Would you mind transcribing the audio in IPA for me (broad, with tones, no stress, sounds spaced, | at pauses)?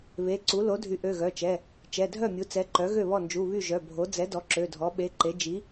β e˩˧˩ ǀ u˩˥ l o˩˥ dʱ y˩˥ ʔ ø˩˧˩ ɣ œ˩˧˩ t͡ʃ ɛ˩˧˩ | t͡ʃ ɛ˩˧˩ dʱ œ˥˩ mʲ u˩˥ t͡s ɛ˩˧˩ ǃ œ˩˥ ɣ ø˥˩ β ɔ˥˩ n d͡ʒ u˩˧˩ β y˥˩ ʒ œ˩˧˩ bʱ o˩˥ d͡z ɛ˩˥ d ɔ˩˥ ǁ ø˩˧˩ dʱ ɔ˩˥ ɓ e˩˧˩ ǃ e˩˥ d͡ʒ i˩˥